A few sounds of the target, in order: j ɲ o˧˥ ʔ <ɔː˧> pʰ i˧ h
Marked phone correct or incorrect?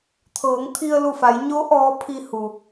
incorrect